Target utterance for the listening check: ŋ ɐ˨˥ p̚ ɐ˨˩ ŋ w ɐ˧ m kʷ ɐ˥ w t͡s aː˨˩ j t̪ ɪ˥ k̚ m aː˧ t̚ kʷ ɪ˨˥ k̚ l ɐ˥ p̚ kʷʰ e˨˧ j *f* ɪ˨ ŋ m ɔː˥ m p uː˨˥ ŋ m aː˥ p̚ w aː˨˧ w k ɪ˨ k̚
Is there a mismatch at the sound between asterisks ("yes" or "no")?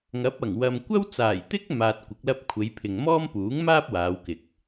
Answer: yes